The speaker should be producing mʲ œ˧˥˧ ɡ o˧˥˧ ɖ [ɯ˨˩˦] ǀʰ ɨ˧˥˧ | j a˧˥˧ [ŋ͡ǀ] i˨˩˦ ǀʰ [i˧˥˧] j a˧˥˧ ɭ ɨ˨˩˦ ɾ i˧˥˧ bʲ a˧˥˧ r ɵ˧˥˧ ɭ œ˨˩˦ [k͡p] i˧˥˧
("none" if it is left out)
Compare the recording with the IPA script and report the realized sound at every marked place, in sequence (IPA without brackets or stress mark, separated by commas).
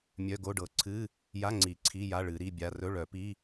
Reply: ɤ˨˩˦, ŋ͡ǀ, i˧˥˧, p